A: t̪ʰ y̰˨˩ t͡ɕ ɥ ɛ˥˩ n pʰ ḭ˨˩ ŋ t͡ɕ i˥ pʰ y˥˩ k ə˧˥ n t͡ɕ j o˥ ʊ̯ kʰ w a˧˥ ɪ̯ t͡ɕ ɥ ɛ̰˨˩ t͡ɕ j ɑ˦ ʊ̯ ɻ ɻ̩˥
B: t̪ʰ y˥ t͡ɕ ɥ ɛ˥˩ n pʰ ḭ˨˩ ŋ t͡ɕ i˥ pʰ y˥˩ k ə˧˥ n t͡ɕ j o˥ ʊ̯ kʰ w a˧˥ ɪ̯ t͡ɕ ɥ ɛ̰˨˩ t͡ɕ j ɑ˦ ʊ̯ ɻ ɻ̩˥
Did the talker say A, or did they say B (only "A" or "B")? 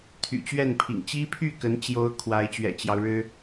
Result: A